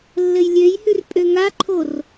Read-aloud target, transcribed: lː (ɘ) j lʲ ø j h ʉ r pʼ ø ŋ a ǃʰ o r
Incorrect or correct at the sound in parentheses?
correct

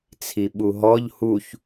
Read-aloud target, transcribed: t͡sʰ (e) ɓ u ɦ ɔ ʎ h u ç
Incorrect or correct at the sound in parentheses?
incorrect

